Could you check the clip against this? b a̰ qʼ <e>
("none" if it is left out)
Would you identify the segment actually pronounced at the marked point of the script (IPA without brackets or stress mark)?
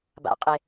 e